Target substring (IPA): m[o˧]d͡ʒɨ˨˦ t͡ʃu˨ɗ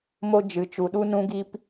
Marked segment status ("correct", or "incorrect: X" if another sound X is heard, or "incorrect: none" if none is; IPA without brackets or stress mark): incorrect: o˦